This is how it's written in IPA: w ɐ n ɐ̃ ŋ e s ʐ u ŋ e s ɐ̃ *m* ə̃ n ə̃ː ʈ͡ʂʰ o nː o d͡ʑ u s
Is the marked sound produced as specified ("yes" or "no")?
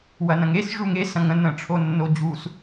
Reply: no